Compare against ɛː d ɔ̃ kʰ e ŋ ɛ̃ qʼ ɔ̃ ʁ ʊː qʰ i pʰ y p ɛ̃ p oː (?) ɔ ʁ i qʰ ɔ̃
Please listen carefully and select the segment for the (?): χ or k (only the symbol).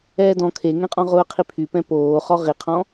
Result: χ